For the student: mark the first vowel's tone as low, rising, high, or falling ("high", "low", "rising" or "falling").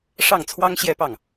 falling